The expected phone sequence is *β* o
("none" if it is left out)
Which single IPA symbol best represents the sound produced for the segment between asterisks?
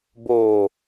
b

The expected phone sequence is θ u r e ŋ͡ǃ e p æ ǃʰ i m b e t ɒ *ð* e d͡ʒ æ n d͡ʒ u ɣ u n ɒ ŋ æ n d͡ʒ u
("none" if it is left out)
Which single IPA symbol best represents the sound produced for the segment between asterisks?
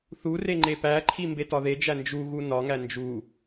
ð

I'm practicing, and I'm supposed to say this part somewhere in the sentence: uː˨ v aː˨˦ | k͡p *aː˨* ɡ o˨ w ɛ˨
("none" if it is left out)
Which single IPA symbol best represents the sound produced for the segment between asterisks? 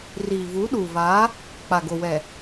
a˨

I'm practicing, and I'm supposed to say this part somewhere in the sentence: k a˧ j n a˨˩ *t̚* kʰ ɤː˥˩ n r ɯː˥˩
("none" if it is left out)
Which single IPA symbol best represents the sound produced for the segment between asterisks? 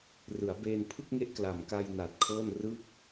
t̚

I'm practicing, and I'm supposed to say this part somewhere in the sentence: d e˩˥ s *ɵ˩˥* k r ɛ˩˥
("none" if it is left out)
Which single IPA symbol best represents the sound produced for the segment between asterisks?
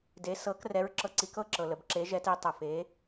ɤ˩˥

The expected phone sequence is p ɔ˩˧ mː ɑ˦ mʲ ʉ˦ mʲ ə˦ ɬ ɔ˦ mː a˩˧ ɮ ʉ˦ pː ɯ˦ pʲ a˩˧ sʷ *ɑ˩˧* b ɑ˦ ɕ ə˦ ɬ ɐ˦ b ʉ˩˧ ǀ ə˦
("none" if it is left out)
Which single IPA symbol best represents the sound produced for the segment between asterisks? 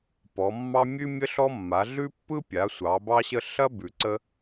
ɑ˩˧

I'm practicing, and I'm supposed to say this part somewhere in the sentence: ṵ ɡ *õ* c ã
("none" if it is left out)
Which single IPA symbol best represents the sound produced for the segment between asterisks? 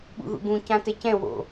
ũ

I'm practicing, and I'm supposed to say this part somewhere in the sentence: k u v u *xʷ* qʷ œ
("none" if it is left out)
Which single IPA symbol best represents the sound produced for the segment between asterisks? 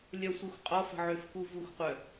xʷ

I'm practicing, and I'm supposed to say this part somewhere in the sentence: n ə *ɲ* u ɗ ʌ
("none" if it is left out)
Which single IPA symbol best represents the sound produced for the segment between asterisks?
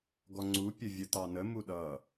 m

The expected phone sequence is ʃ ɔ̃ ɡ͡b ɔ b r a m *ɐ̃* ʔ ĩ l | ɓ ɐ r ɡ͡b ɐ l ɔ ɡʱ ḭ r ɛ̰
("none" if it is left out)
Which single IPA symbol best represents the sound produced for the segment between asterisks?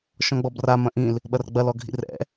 ɐ̃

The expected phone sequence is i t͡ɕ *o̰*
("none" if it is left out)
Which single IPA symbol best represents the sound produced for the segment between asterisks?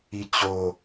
o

